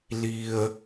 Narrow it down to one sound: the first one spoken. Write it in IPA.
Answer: l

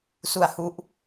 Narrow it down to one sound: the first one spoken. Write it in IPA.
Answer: s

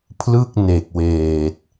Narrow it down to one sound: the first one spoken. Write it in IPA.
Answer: pʰ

